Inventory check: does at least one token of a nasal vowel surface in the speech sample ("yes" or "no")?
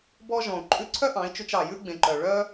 yes